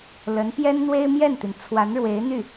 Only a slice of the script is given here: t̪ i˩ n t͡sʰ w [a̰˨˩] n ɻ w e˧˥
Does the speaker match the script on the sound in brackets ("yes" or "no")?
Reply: no